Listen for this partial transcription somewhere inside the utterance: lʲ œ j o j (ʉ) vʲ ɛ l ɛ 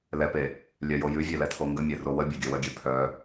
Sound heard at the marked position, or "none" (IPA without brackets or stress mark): ʉ